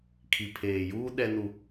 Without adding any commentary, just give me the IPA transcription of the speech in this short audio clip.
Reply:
kʰ i˨ pʰ eː˨ j uː˦ ɗ ɛ˦ n u˦

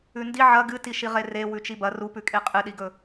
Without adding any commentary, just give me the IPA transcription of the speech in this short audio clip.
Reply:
ʉ n d i ʕ ɐ ɡ ɨ t i ʃ i ʁ e r e w ʉ t͡ʃ i b ɐ r u p ʉ kʼ e qʼ ɨ ɗ i ɡ ɵ

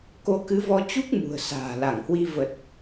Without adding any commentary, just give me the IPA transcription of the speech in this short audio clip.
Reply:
k o˨˦ k ɨ˨˦ v ɔ˧ t͡ɕ u˦˥ k̚ m ṳ˨˩ ə̯ s a̤ː˨˩ l a˧˩ ŋ h w i˧ v ə˨˩ t̚

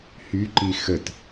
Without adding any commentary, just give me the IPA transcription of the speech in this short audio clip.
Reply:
h y ǃ i x ə t

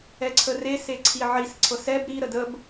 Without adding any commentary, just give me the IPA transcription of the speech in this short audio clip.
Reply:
ɛ ǀʰ ə r e s e ǀʰ i ʕ i s ǀʰ ɤ s ɛ b ɾ i ɾ ə d ə b

